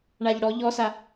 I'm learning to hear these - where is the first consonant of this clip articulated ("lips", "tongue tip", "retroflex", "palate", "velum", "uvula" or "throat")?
retroflex